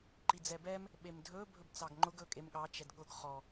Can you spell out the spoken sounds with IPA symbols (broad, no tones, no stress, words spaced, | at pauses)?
ǃid͡zɛbɛm | ɓemdʱɵ bʱɵbt͡sɑɡŋ͡ǃʊɡ ɵkʼem ɠɑ t͡ʃɛdɠʊɡ χɔ